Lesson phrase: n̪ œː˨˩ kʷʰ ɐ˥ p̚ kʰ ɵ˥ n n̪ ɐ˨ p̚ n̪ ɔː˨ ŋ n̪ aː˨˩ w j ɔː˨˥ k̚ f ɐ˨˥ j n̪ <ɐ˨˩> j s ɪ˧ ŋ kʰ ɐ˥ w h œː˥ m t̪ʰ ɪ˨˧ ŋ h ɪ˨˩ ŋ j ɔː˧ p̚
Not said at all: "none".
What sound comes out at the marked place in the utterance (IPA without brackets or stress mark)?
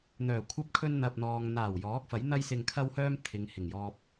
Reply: ɐ˥